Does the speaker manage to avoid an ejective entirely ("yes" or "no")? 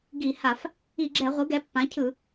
yes